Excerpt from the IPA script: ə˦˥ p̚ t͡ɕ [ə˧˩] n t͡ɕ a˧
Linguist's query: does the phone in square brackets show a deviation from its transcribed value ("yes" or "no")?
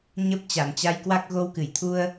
yes